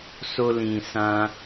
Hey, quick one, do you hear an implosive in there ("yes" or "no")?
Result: no